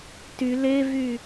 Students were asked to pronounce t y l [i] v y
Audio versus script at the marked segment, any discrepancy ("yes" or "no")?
yes